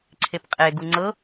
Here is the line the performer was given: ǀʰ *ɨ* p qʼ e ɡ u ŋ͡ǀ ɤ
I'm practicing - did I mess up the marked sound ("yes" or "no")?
yes